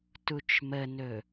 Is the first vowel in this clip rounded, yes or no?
yes